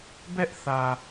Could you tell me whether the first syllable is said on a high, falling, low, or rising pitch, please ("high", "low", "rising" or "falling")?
high